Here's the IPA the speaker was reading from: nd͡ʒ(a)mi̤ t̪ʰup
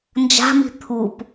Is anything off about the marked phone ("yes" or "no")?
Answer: yes